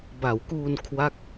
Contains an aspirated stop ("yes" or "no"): yes